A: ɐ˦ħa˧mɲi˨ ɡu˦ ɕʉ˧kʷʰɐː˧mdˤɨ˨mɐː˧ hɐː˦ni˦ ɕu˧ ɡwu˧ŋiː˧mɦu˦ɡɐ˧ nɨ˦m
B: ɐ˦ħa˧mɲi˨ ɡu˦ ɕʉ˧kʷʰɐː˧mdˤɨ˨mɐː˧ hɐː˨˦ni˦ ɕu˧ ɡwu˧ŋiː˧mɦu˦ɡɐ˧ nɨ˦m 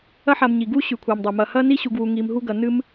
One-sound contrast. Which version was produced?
A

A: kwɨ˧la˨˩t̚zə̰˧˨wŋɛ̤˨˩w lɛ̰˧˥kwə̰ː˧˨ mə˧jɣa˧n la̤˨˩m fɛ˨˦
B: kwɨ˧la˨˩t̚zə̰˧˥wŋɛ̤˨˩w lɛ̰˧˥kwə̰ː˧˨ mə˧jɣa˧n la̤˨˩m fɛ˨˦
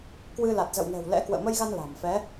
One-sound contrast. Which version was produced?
A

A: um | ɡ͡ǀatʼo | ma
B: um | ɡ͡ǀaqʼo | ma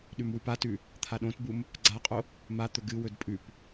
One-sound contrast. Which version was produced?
B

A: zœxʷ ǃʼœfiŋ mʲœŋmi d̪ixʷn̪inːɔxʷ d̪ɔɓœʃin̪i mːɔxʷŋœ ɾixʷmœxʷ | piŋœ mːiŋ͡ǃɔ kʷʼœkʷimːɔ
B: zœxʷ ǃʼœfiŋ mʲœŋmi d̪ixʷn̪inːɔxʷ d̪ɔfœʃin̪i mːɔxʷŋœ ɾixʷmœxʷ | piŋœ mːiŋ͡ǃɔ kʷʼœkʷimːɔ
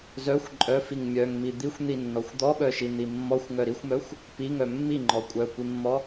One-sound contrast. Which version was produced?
A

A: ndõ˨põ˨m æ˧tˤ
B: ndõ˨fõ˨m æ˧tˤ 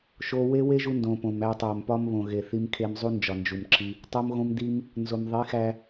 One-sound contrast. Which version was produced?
A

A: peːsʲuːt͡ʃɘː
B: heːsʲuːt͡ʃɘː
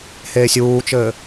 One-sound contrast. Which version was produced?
B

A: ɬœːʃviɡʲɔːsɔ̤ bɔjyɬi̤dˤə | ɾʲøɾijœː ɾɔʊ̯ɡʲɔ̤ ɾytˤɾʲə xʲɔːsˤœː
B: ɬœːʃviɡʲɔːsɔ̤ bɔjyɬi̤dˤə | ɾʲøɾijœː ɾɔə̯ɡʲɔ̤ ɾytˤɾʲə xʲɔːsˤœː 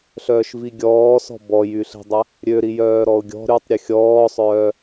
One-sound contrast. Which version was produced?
A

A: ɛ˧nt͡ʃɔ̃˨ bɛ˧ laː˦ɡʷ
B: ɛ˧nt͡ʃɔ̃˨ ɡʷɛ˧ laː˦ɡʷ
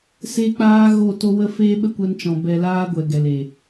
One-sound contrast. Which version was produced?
A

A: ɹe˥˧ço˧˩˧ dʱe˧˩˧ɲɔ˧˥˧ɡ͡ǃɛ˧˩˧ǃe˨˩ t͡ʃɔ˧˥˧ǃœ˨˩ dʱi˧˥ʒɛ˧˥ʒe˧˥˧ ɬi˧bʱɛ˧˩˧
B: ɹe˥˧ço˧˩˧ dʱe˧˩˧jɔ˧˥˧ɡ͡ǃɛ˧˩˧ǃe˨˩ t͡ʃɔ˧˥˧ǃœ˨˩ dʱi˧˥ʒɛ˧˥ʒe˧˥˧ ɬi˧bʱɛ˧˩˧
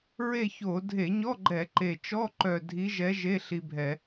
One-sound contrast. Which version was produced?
A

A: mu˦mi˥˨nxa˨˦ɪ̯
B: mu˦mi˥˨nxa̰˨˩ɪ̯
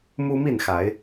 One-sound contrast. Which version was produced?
A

